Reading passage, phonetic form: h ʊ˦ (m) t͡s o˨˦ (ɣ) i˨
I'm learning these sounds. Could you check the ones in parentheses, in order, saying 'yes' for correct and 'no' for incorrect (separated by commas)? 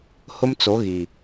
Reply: yes, yes